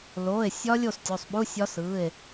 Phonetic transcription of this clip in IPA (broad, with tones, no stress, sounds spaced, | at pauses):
l oː˩˧˩ e̯ sʲ ɒ˦˥ lʲ o˥˨ s tʲ o˩˧˩ sˤ ɓ u˧˥˧ sʲ ɒ˦˥ s ɯː˩˧˩ e̯